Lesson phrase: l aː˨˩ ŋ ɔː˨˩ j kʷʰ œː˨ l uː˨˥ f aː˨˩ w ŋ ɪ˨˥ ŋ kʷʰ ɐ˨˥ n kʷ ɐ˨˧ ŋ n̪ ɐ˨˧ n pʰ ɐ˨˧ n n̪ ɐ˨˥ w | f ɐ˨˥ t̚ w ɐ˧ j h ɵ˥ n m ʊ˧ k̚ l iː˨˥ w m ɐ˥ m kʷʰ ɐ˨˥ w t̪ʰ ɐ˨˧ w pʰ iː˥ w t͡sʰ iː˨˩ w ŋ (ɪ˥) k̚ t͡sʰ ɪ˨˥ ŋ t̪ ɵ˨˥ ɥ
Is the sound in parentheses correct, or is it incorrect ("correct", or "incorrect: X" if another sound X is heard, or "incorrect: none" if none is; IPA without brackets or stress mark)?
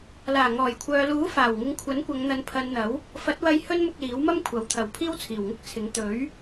correct